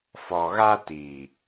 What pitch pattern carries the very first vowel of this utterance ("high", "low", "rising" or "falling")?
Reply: low